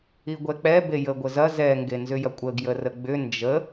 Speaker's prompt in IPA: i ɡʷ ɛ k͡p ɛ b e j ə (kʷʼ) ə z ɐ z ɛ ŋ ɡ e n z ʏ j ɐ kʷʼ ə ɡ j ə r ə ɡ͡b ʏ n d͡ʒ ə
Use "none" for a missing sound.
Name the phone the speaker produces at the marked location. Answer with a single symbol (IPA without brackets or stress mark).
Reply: ɡʷ